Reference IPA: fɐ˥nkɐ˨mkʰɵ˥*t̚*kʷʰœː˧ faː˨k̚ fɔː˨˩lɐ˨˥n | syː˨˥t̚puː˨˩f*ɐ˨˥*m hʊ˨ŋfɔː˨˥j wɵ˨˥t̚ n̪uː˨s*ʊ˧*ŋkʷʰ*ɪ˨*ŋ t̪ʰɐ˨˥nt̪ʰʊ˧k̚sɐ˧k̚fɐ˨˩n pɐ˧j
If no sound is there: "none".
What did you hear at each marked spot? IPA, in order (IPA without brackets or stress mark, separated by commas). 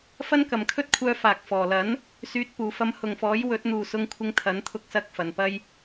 t̚, ɐ˧, ʊ˧, ɪ˧